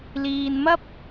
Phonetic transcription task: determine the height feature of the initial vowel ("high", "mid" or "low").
high